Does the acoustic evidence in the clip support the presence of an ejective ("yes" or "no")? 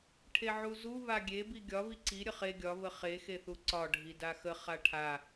no